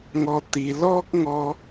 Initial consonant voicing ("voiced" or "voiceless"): voiced